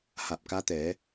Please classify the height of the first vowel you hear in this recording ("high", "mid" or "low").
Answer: low